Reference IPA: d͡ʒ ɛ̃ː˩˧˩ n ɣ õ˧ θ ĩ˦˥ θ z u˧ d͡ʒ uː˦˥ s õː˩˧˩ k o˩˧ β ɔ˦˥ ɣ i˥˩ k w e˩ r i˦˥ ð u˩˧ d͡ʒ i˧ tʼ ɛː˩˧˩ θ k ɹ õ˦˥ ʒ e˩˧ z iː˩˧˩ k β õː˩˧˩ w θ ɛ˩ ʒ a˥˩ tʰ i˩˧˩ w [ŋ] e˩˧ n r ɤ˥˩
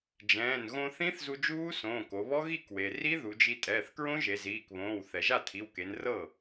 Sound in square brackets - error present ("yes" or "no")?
yes